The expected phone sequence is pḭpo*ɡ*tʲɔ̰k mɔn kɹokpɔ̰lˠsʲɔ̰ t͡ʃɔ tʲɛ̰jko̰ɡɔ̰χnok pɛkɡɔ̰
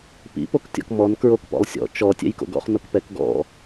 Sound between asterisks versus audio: incorrect: k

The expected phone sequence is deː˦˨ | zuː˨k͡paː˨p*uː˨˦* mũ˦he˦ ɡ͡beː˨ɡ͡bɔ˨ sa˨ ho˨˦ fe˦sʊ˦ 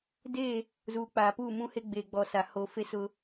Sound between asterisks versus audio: incorrect: uː˦˨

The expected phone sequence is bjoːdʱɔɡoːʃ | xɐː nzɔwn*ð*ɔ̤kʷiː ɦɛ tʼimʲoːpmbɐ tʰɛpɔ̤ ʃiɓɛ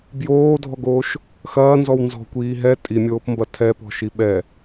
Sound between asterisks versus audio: incorrect: z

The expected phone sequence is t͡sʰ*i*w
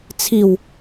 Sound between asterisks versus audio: correct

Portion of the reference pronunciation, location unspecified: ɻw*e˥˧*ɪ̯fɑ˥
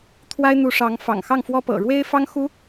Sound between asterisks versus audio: incorrect: e˥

